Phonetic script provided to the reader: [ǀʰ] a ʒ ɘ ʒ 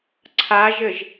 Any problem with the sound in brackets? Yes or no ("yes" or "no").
no